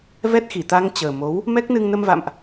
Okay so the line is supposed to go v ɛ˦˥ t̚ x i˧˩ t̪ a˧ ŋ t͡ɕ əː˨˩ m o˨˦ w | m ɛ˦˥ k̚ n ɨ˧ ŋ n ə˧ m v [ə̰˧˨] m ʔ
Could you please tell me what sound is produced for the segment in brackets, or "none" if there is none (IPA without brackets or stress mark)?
a̰˧˨